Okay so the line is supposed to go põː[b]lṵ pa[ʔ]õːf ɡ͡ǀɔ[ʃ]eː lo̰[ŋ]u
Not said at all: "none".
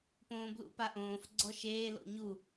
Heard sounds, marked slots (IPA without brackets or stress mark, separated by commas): b, ʔ, ʃ, ɲ